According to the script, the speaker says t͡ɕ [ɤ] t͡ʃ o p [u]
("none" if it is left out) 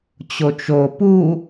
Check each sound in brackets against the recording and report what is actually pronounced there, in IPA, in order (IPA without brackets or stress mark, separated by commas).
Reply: o, u